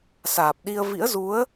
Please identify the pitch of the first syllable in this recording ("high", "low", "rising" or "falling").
low